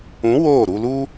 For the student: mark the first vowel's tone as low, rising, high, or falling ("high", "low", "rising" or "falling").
rising